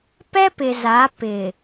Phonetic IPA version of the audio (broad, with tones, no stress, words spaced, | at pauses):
pɛ˦pɪ˨za˨˦ pɪ˨